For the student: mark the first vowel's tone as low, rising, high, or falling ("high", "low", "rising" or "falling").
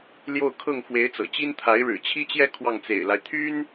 falling